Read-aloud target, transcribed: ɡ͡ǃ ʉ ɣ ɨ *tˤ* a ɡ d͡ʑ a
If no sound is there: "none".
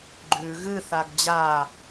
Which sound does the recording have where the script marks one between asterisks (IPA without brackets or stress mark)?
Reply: θ